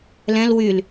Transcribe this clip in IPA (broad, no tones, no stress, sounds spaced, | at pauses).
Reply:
l ɛ̃ l w y l